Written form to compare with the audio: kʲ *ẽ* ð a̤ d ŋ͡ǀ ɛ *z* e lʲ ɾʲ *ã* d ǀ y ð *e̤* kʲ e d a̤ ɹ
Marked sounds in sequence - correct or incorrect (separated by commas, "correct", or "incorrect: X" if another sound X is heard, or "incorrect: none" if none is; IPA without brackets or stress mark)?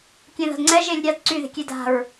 correct, incorrect: ʒ, incorrect: a, correct